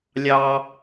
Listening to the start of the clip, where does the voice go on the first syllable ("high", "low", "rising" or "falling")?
high